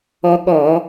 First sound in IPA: ɔ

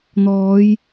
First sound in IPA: n̪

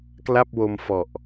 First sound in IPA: k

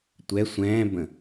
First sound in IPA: tʷ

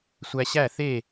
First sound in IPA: sʷ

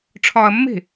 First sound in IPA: ʈ͡ʂʰ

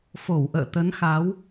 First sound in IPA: f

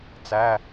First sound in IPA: t͡s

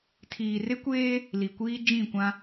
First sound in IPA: tʰ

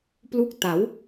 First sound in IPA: p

